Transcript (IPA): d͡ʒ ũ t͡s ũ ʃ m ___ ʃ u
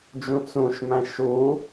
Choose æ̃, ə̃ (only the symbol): æ̃